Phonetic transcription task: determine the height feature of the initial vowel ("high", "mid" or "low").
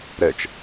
mid